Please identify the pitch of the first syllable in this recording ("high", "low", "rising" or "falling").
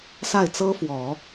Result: falling